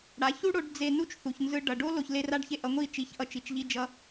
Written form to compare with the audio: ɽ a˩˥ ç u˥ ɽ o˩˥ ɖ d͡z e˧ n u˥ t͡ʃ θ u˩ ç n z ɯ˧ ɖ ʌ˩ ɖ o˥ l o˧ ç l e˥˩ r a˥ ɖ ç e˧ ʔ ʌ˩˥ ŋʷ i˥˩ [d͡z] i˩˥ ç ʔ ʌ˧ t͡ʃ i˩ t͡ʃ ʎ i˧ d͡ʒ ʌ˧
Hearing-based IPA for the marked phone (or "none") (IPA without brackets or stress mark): t͡ʃ